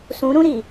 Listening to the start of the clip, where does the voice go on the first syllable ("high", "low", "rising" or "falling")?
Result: rising